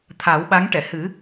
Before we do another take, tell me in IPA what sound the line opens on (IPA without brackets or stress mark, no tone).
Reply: t̪ʰ